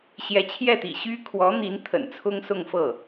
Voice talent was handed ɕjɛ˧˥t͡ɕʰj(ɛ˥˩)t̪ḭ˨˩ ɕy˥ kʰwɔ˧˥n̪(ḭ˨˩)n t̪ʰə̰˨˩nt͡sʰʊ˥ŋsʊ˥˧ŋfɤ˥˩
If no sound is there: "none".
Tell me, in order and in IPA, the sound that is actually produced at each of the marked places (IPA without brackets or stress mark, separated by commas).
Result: ɛ˥˩, i˧˥